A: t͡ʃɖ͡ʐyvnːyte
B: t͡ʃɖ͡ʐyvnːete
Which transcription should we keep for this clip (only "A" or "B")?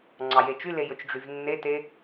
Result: B